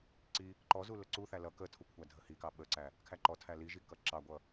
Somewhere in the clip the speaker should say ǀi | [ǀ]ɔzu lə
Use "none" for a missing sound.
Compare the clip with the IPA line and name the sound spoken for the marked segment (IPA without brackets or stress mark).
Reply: ǃ